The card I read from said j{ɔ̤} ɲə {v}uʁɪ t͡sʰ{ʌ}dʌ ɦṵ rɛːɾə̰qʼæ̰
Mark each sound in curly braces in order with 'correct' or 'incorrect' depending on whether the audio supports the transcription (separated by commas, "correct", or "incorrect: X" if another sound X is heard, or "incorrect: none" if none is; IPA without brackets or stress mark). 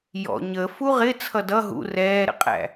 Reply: incorrect: ɔ̰, incorrect: f, correct